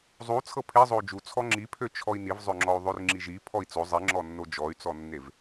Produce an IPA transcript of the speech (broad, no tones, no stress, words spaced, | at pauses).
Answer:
zˤu t͡sʰɤpʰe zˤou̯d͡ʒu t͡sʰɔŋ͡ǁipʰø t͡ʃʰɔi̯nivzˤøŋ͡ǁɔu̯ ðˤørŋ͡ǁiʒi pʰɔi̯t͡so zˤiŋ͡ǁɔnːo d͡ʒɔy̯t͡sɔnːev